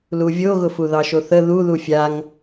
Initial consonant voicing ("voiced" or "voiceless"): voiced